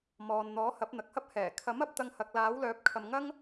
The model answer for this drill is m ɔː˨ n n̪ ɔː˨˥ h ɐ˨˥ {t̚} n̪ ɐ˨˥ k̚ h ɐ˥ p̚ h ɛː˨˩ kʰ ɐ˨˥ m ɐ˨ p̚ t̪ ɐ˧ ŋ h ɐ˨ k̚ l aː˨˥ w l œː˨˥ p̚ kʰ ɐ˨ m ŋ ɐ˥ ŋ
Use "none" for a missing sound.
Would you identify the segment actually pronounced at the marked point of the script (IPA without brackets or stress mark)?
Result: p̚